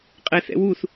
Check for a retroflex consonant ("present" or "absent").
absent